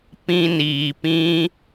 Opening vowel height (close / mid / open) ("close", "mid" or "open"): close